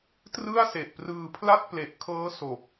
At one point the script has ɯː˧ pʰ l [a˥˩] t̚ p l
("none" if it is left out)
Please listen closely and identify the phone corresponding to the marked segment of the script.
a˥˩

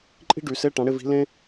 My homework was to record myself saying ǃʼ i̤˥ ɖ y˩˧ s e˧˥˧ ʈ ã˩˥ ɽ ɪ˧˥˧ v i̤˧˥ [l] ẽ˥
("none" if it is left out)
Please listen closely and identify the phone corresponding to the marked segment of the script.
l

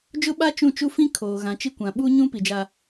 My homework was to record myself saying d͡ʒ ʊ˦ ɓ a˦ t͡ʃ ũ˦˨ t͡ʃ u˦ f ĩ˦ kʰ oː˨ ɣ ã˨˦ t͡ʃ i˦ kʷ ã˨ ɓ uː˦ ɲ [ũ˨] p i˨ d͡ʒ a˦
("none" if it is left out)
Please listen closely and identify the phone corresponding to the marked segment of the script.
ũ˦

